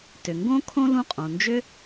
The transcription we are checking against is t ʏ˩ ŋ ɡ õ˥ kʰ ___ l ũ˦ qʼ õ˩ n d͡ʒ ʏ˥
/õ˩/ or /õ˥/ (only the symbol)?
õ˥